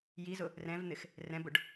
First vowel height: high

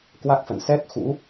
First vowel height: low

